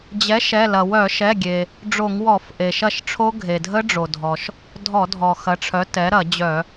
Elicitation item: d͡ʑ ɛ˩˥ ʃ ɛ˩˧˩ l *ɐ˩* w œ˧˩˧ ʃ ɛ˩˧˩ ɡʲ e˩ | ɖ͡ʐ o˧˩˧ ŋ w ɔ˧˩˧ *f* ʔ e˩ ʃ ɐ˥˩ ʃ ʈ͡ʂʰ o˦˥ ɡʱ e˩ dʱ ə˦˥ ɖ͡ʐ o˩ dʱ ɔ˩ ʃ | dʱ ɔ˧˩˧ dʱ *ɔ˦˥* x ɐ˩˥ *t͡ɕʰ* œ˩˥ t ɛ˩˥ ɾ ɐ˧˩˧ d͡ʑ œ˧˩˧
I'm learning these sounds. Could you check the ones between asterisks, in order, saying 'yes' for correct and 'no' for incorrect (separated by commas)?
yes, yes, no, no